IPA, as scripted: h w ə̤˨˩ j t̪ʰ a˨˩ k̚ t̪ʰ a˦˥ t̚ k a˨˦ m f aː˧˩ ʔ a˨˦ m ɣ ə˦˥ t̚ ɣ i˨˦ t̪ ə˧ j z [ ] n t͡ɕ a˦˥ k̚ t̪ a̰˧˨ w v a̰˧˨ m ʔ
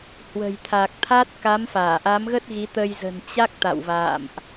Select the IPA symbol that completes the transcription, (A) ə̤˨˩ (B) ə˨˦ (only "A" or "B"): A